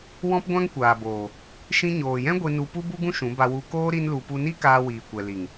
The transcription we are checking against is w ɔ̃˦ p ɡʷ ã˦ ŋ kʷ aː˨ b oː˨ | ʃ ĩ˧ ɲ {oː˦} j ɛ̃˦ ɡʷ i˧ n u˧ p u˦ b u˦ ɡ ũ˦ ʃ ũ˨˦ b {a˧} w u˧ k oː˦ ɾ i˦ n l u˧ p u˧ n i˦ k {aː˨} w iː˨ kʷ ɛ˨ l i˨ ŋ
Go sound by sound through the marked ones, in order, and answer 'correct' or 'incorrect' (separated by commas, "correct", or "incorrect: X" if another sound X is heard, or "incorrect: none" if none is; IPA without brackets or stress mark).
incorrect: oː˨, correct, incorrect: aː˧